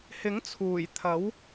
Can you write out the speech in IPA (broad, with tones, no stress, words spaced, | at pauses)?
hɪ˨˥ŋt͡sʰuː˨˩jt̪ʰɐ˨˥w